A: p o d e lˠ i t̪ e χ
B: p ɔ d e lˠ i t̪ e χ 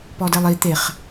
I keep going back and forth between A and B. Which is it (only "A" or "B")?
B